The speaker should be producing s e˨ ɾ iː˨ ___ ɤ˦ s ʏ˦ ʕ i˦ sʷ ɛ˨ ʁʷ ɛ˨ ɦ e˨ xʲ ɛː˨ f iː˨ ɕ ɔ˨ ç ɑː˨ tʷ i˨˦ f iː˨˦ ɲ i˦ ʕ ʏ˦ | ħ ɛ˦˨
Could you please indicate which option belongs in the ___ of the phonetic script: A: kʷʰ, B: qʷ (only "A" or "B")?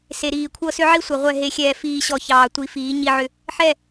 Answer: A